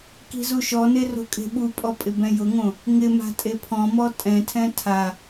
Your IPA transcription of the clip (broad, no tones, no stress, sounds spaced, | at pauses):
k i̤ z u ʃ ɔ n e r o̤ kʼ e̤ ɓ u pʼ ɔ pʼ ɪ b ɛ̃ j ʊ ŋ õ | ŋ ɪ m a̤ tʼ e pʰ ɔ̃ m ɔ tʼ ɛ̃ tʰ ɛ̃ tʰ a